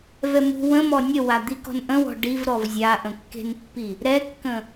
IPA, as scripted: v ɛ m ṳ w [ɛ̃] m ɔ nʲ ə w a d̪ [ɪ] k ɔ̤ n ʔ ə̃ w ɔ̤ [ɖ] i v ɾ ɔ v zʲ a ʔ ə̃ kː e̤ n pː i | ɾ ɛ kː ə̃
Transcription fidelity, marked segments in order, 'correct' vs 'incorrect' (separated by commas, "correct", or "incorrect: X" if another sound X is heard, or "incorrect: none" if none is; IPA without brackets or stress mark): incorrect: ə̃, incorrect: i, correct